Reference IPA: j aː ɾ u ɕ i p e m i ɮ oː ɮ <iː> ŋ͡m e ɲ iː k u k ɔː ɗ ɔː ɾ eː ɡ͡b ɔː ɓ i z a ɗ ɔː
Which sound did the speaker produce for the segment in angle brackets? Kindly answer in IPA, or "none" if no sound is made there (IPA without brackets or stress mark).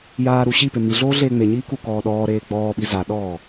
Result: eː